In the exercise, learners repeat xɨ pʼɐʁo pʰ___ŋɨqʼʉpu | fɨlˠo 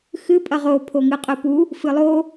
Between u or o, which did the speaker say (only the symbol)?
o